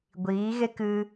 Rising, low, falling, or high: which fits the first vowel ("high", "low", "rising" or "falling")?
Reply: rising